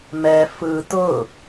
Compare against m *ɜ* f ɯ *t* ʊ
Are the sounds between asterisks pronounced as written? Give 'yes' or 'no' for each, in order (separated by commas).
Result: no, yes